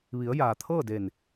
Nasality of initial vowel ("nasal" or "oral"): oral